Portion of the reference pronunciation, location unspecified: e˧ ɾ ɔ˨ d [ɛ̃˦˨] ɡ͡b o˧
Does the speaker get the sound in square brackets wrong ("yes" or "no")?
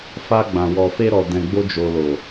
yes